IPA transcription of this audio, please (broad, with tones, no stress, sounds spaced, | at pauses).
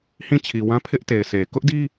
h ĩ˦˨ t͡ɕʰ i˨ w ã˦ pʰ ɪ˦ ʔ t e˨ ɪ̯ sʰ e˨ k ʊ˦ ʔ d i˦